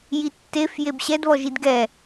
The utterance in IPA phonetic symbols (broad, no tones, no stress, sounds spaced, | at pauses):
j i tː e f j e b ɕ ɛ d β ɔ ʒ i d ɡ ɛ